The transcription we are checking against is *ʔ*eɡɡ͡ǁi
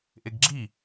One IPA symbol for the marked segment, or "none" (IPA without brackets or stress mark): ʔ